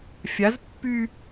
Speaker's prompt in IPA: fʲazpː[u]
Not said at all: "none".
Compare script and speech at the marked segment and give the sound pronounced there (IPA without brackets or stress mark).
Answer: y